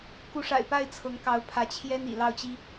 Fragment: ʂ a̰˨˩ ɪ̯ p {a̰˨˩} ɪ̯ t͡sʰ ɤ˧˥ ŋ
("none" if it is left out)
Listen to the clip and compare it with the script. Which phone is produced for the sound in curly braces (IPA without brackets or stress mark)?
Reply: a˥˩